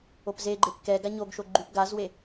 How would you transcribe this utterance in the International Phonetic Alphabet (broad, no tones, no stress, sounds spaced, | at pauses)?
o p z e ɡ͡ǃ e p k ɛ ɡ a ɲ o ɡ ʃ o ɡ͡ǃ y p ɡ a z w e